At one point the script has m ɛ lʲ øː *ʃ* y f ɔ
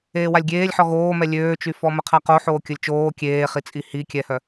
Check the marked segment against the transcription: incorrect: t͡ʃ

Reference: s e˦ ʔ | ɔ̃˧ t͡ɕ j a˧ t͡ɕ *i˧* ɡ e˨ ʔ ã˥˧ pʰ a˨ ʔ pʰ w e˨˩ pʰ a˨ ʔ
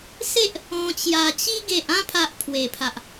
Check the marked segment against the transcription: correct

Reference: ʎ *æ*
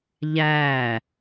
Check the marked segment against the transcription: correct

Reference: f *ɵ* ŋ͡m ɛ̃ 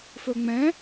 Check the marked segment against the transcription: correct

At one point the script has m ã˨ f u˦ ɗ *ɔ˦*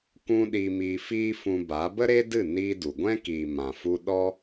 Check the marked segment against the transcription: correct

